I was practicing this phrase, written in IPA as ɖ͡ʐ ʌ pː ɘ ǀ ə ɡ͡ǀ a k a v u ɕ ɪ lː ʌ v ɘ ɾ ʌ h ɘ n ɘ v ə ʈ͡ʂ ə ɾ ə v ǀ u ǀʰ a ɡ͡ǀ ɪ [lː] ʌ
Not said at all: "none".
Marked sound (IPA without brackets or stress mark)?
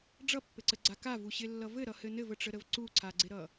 ɾ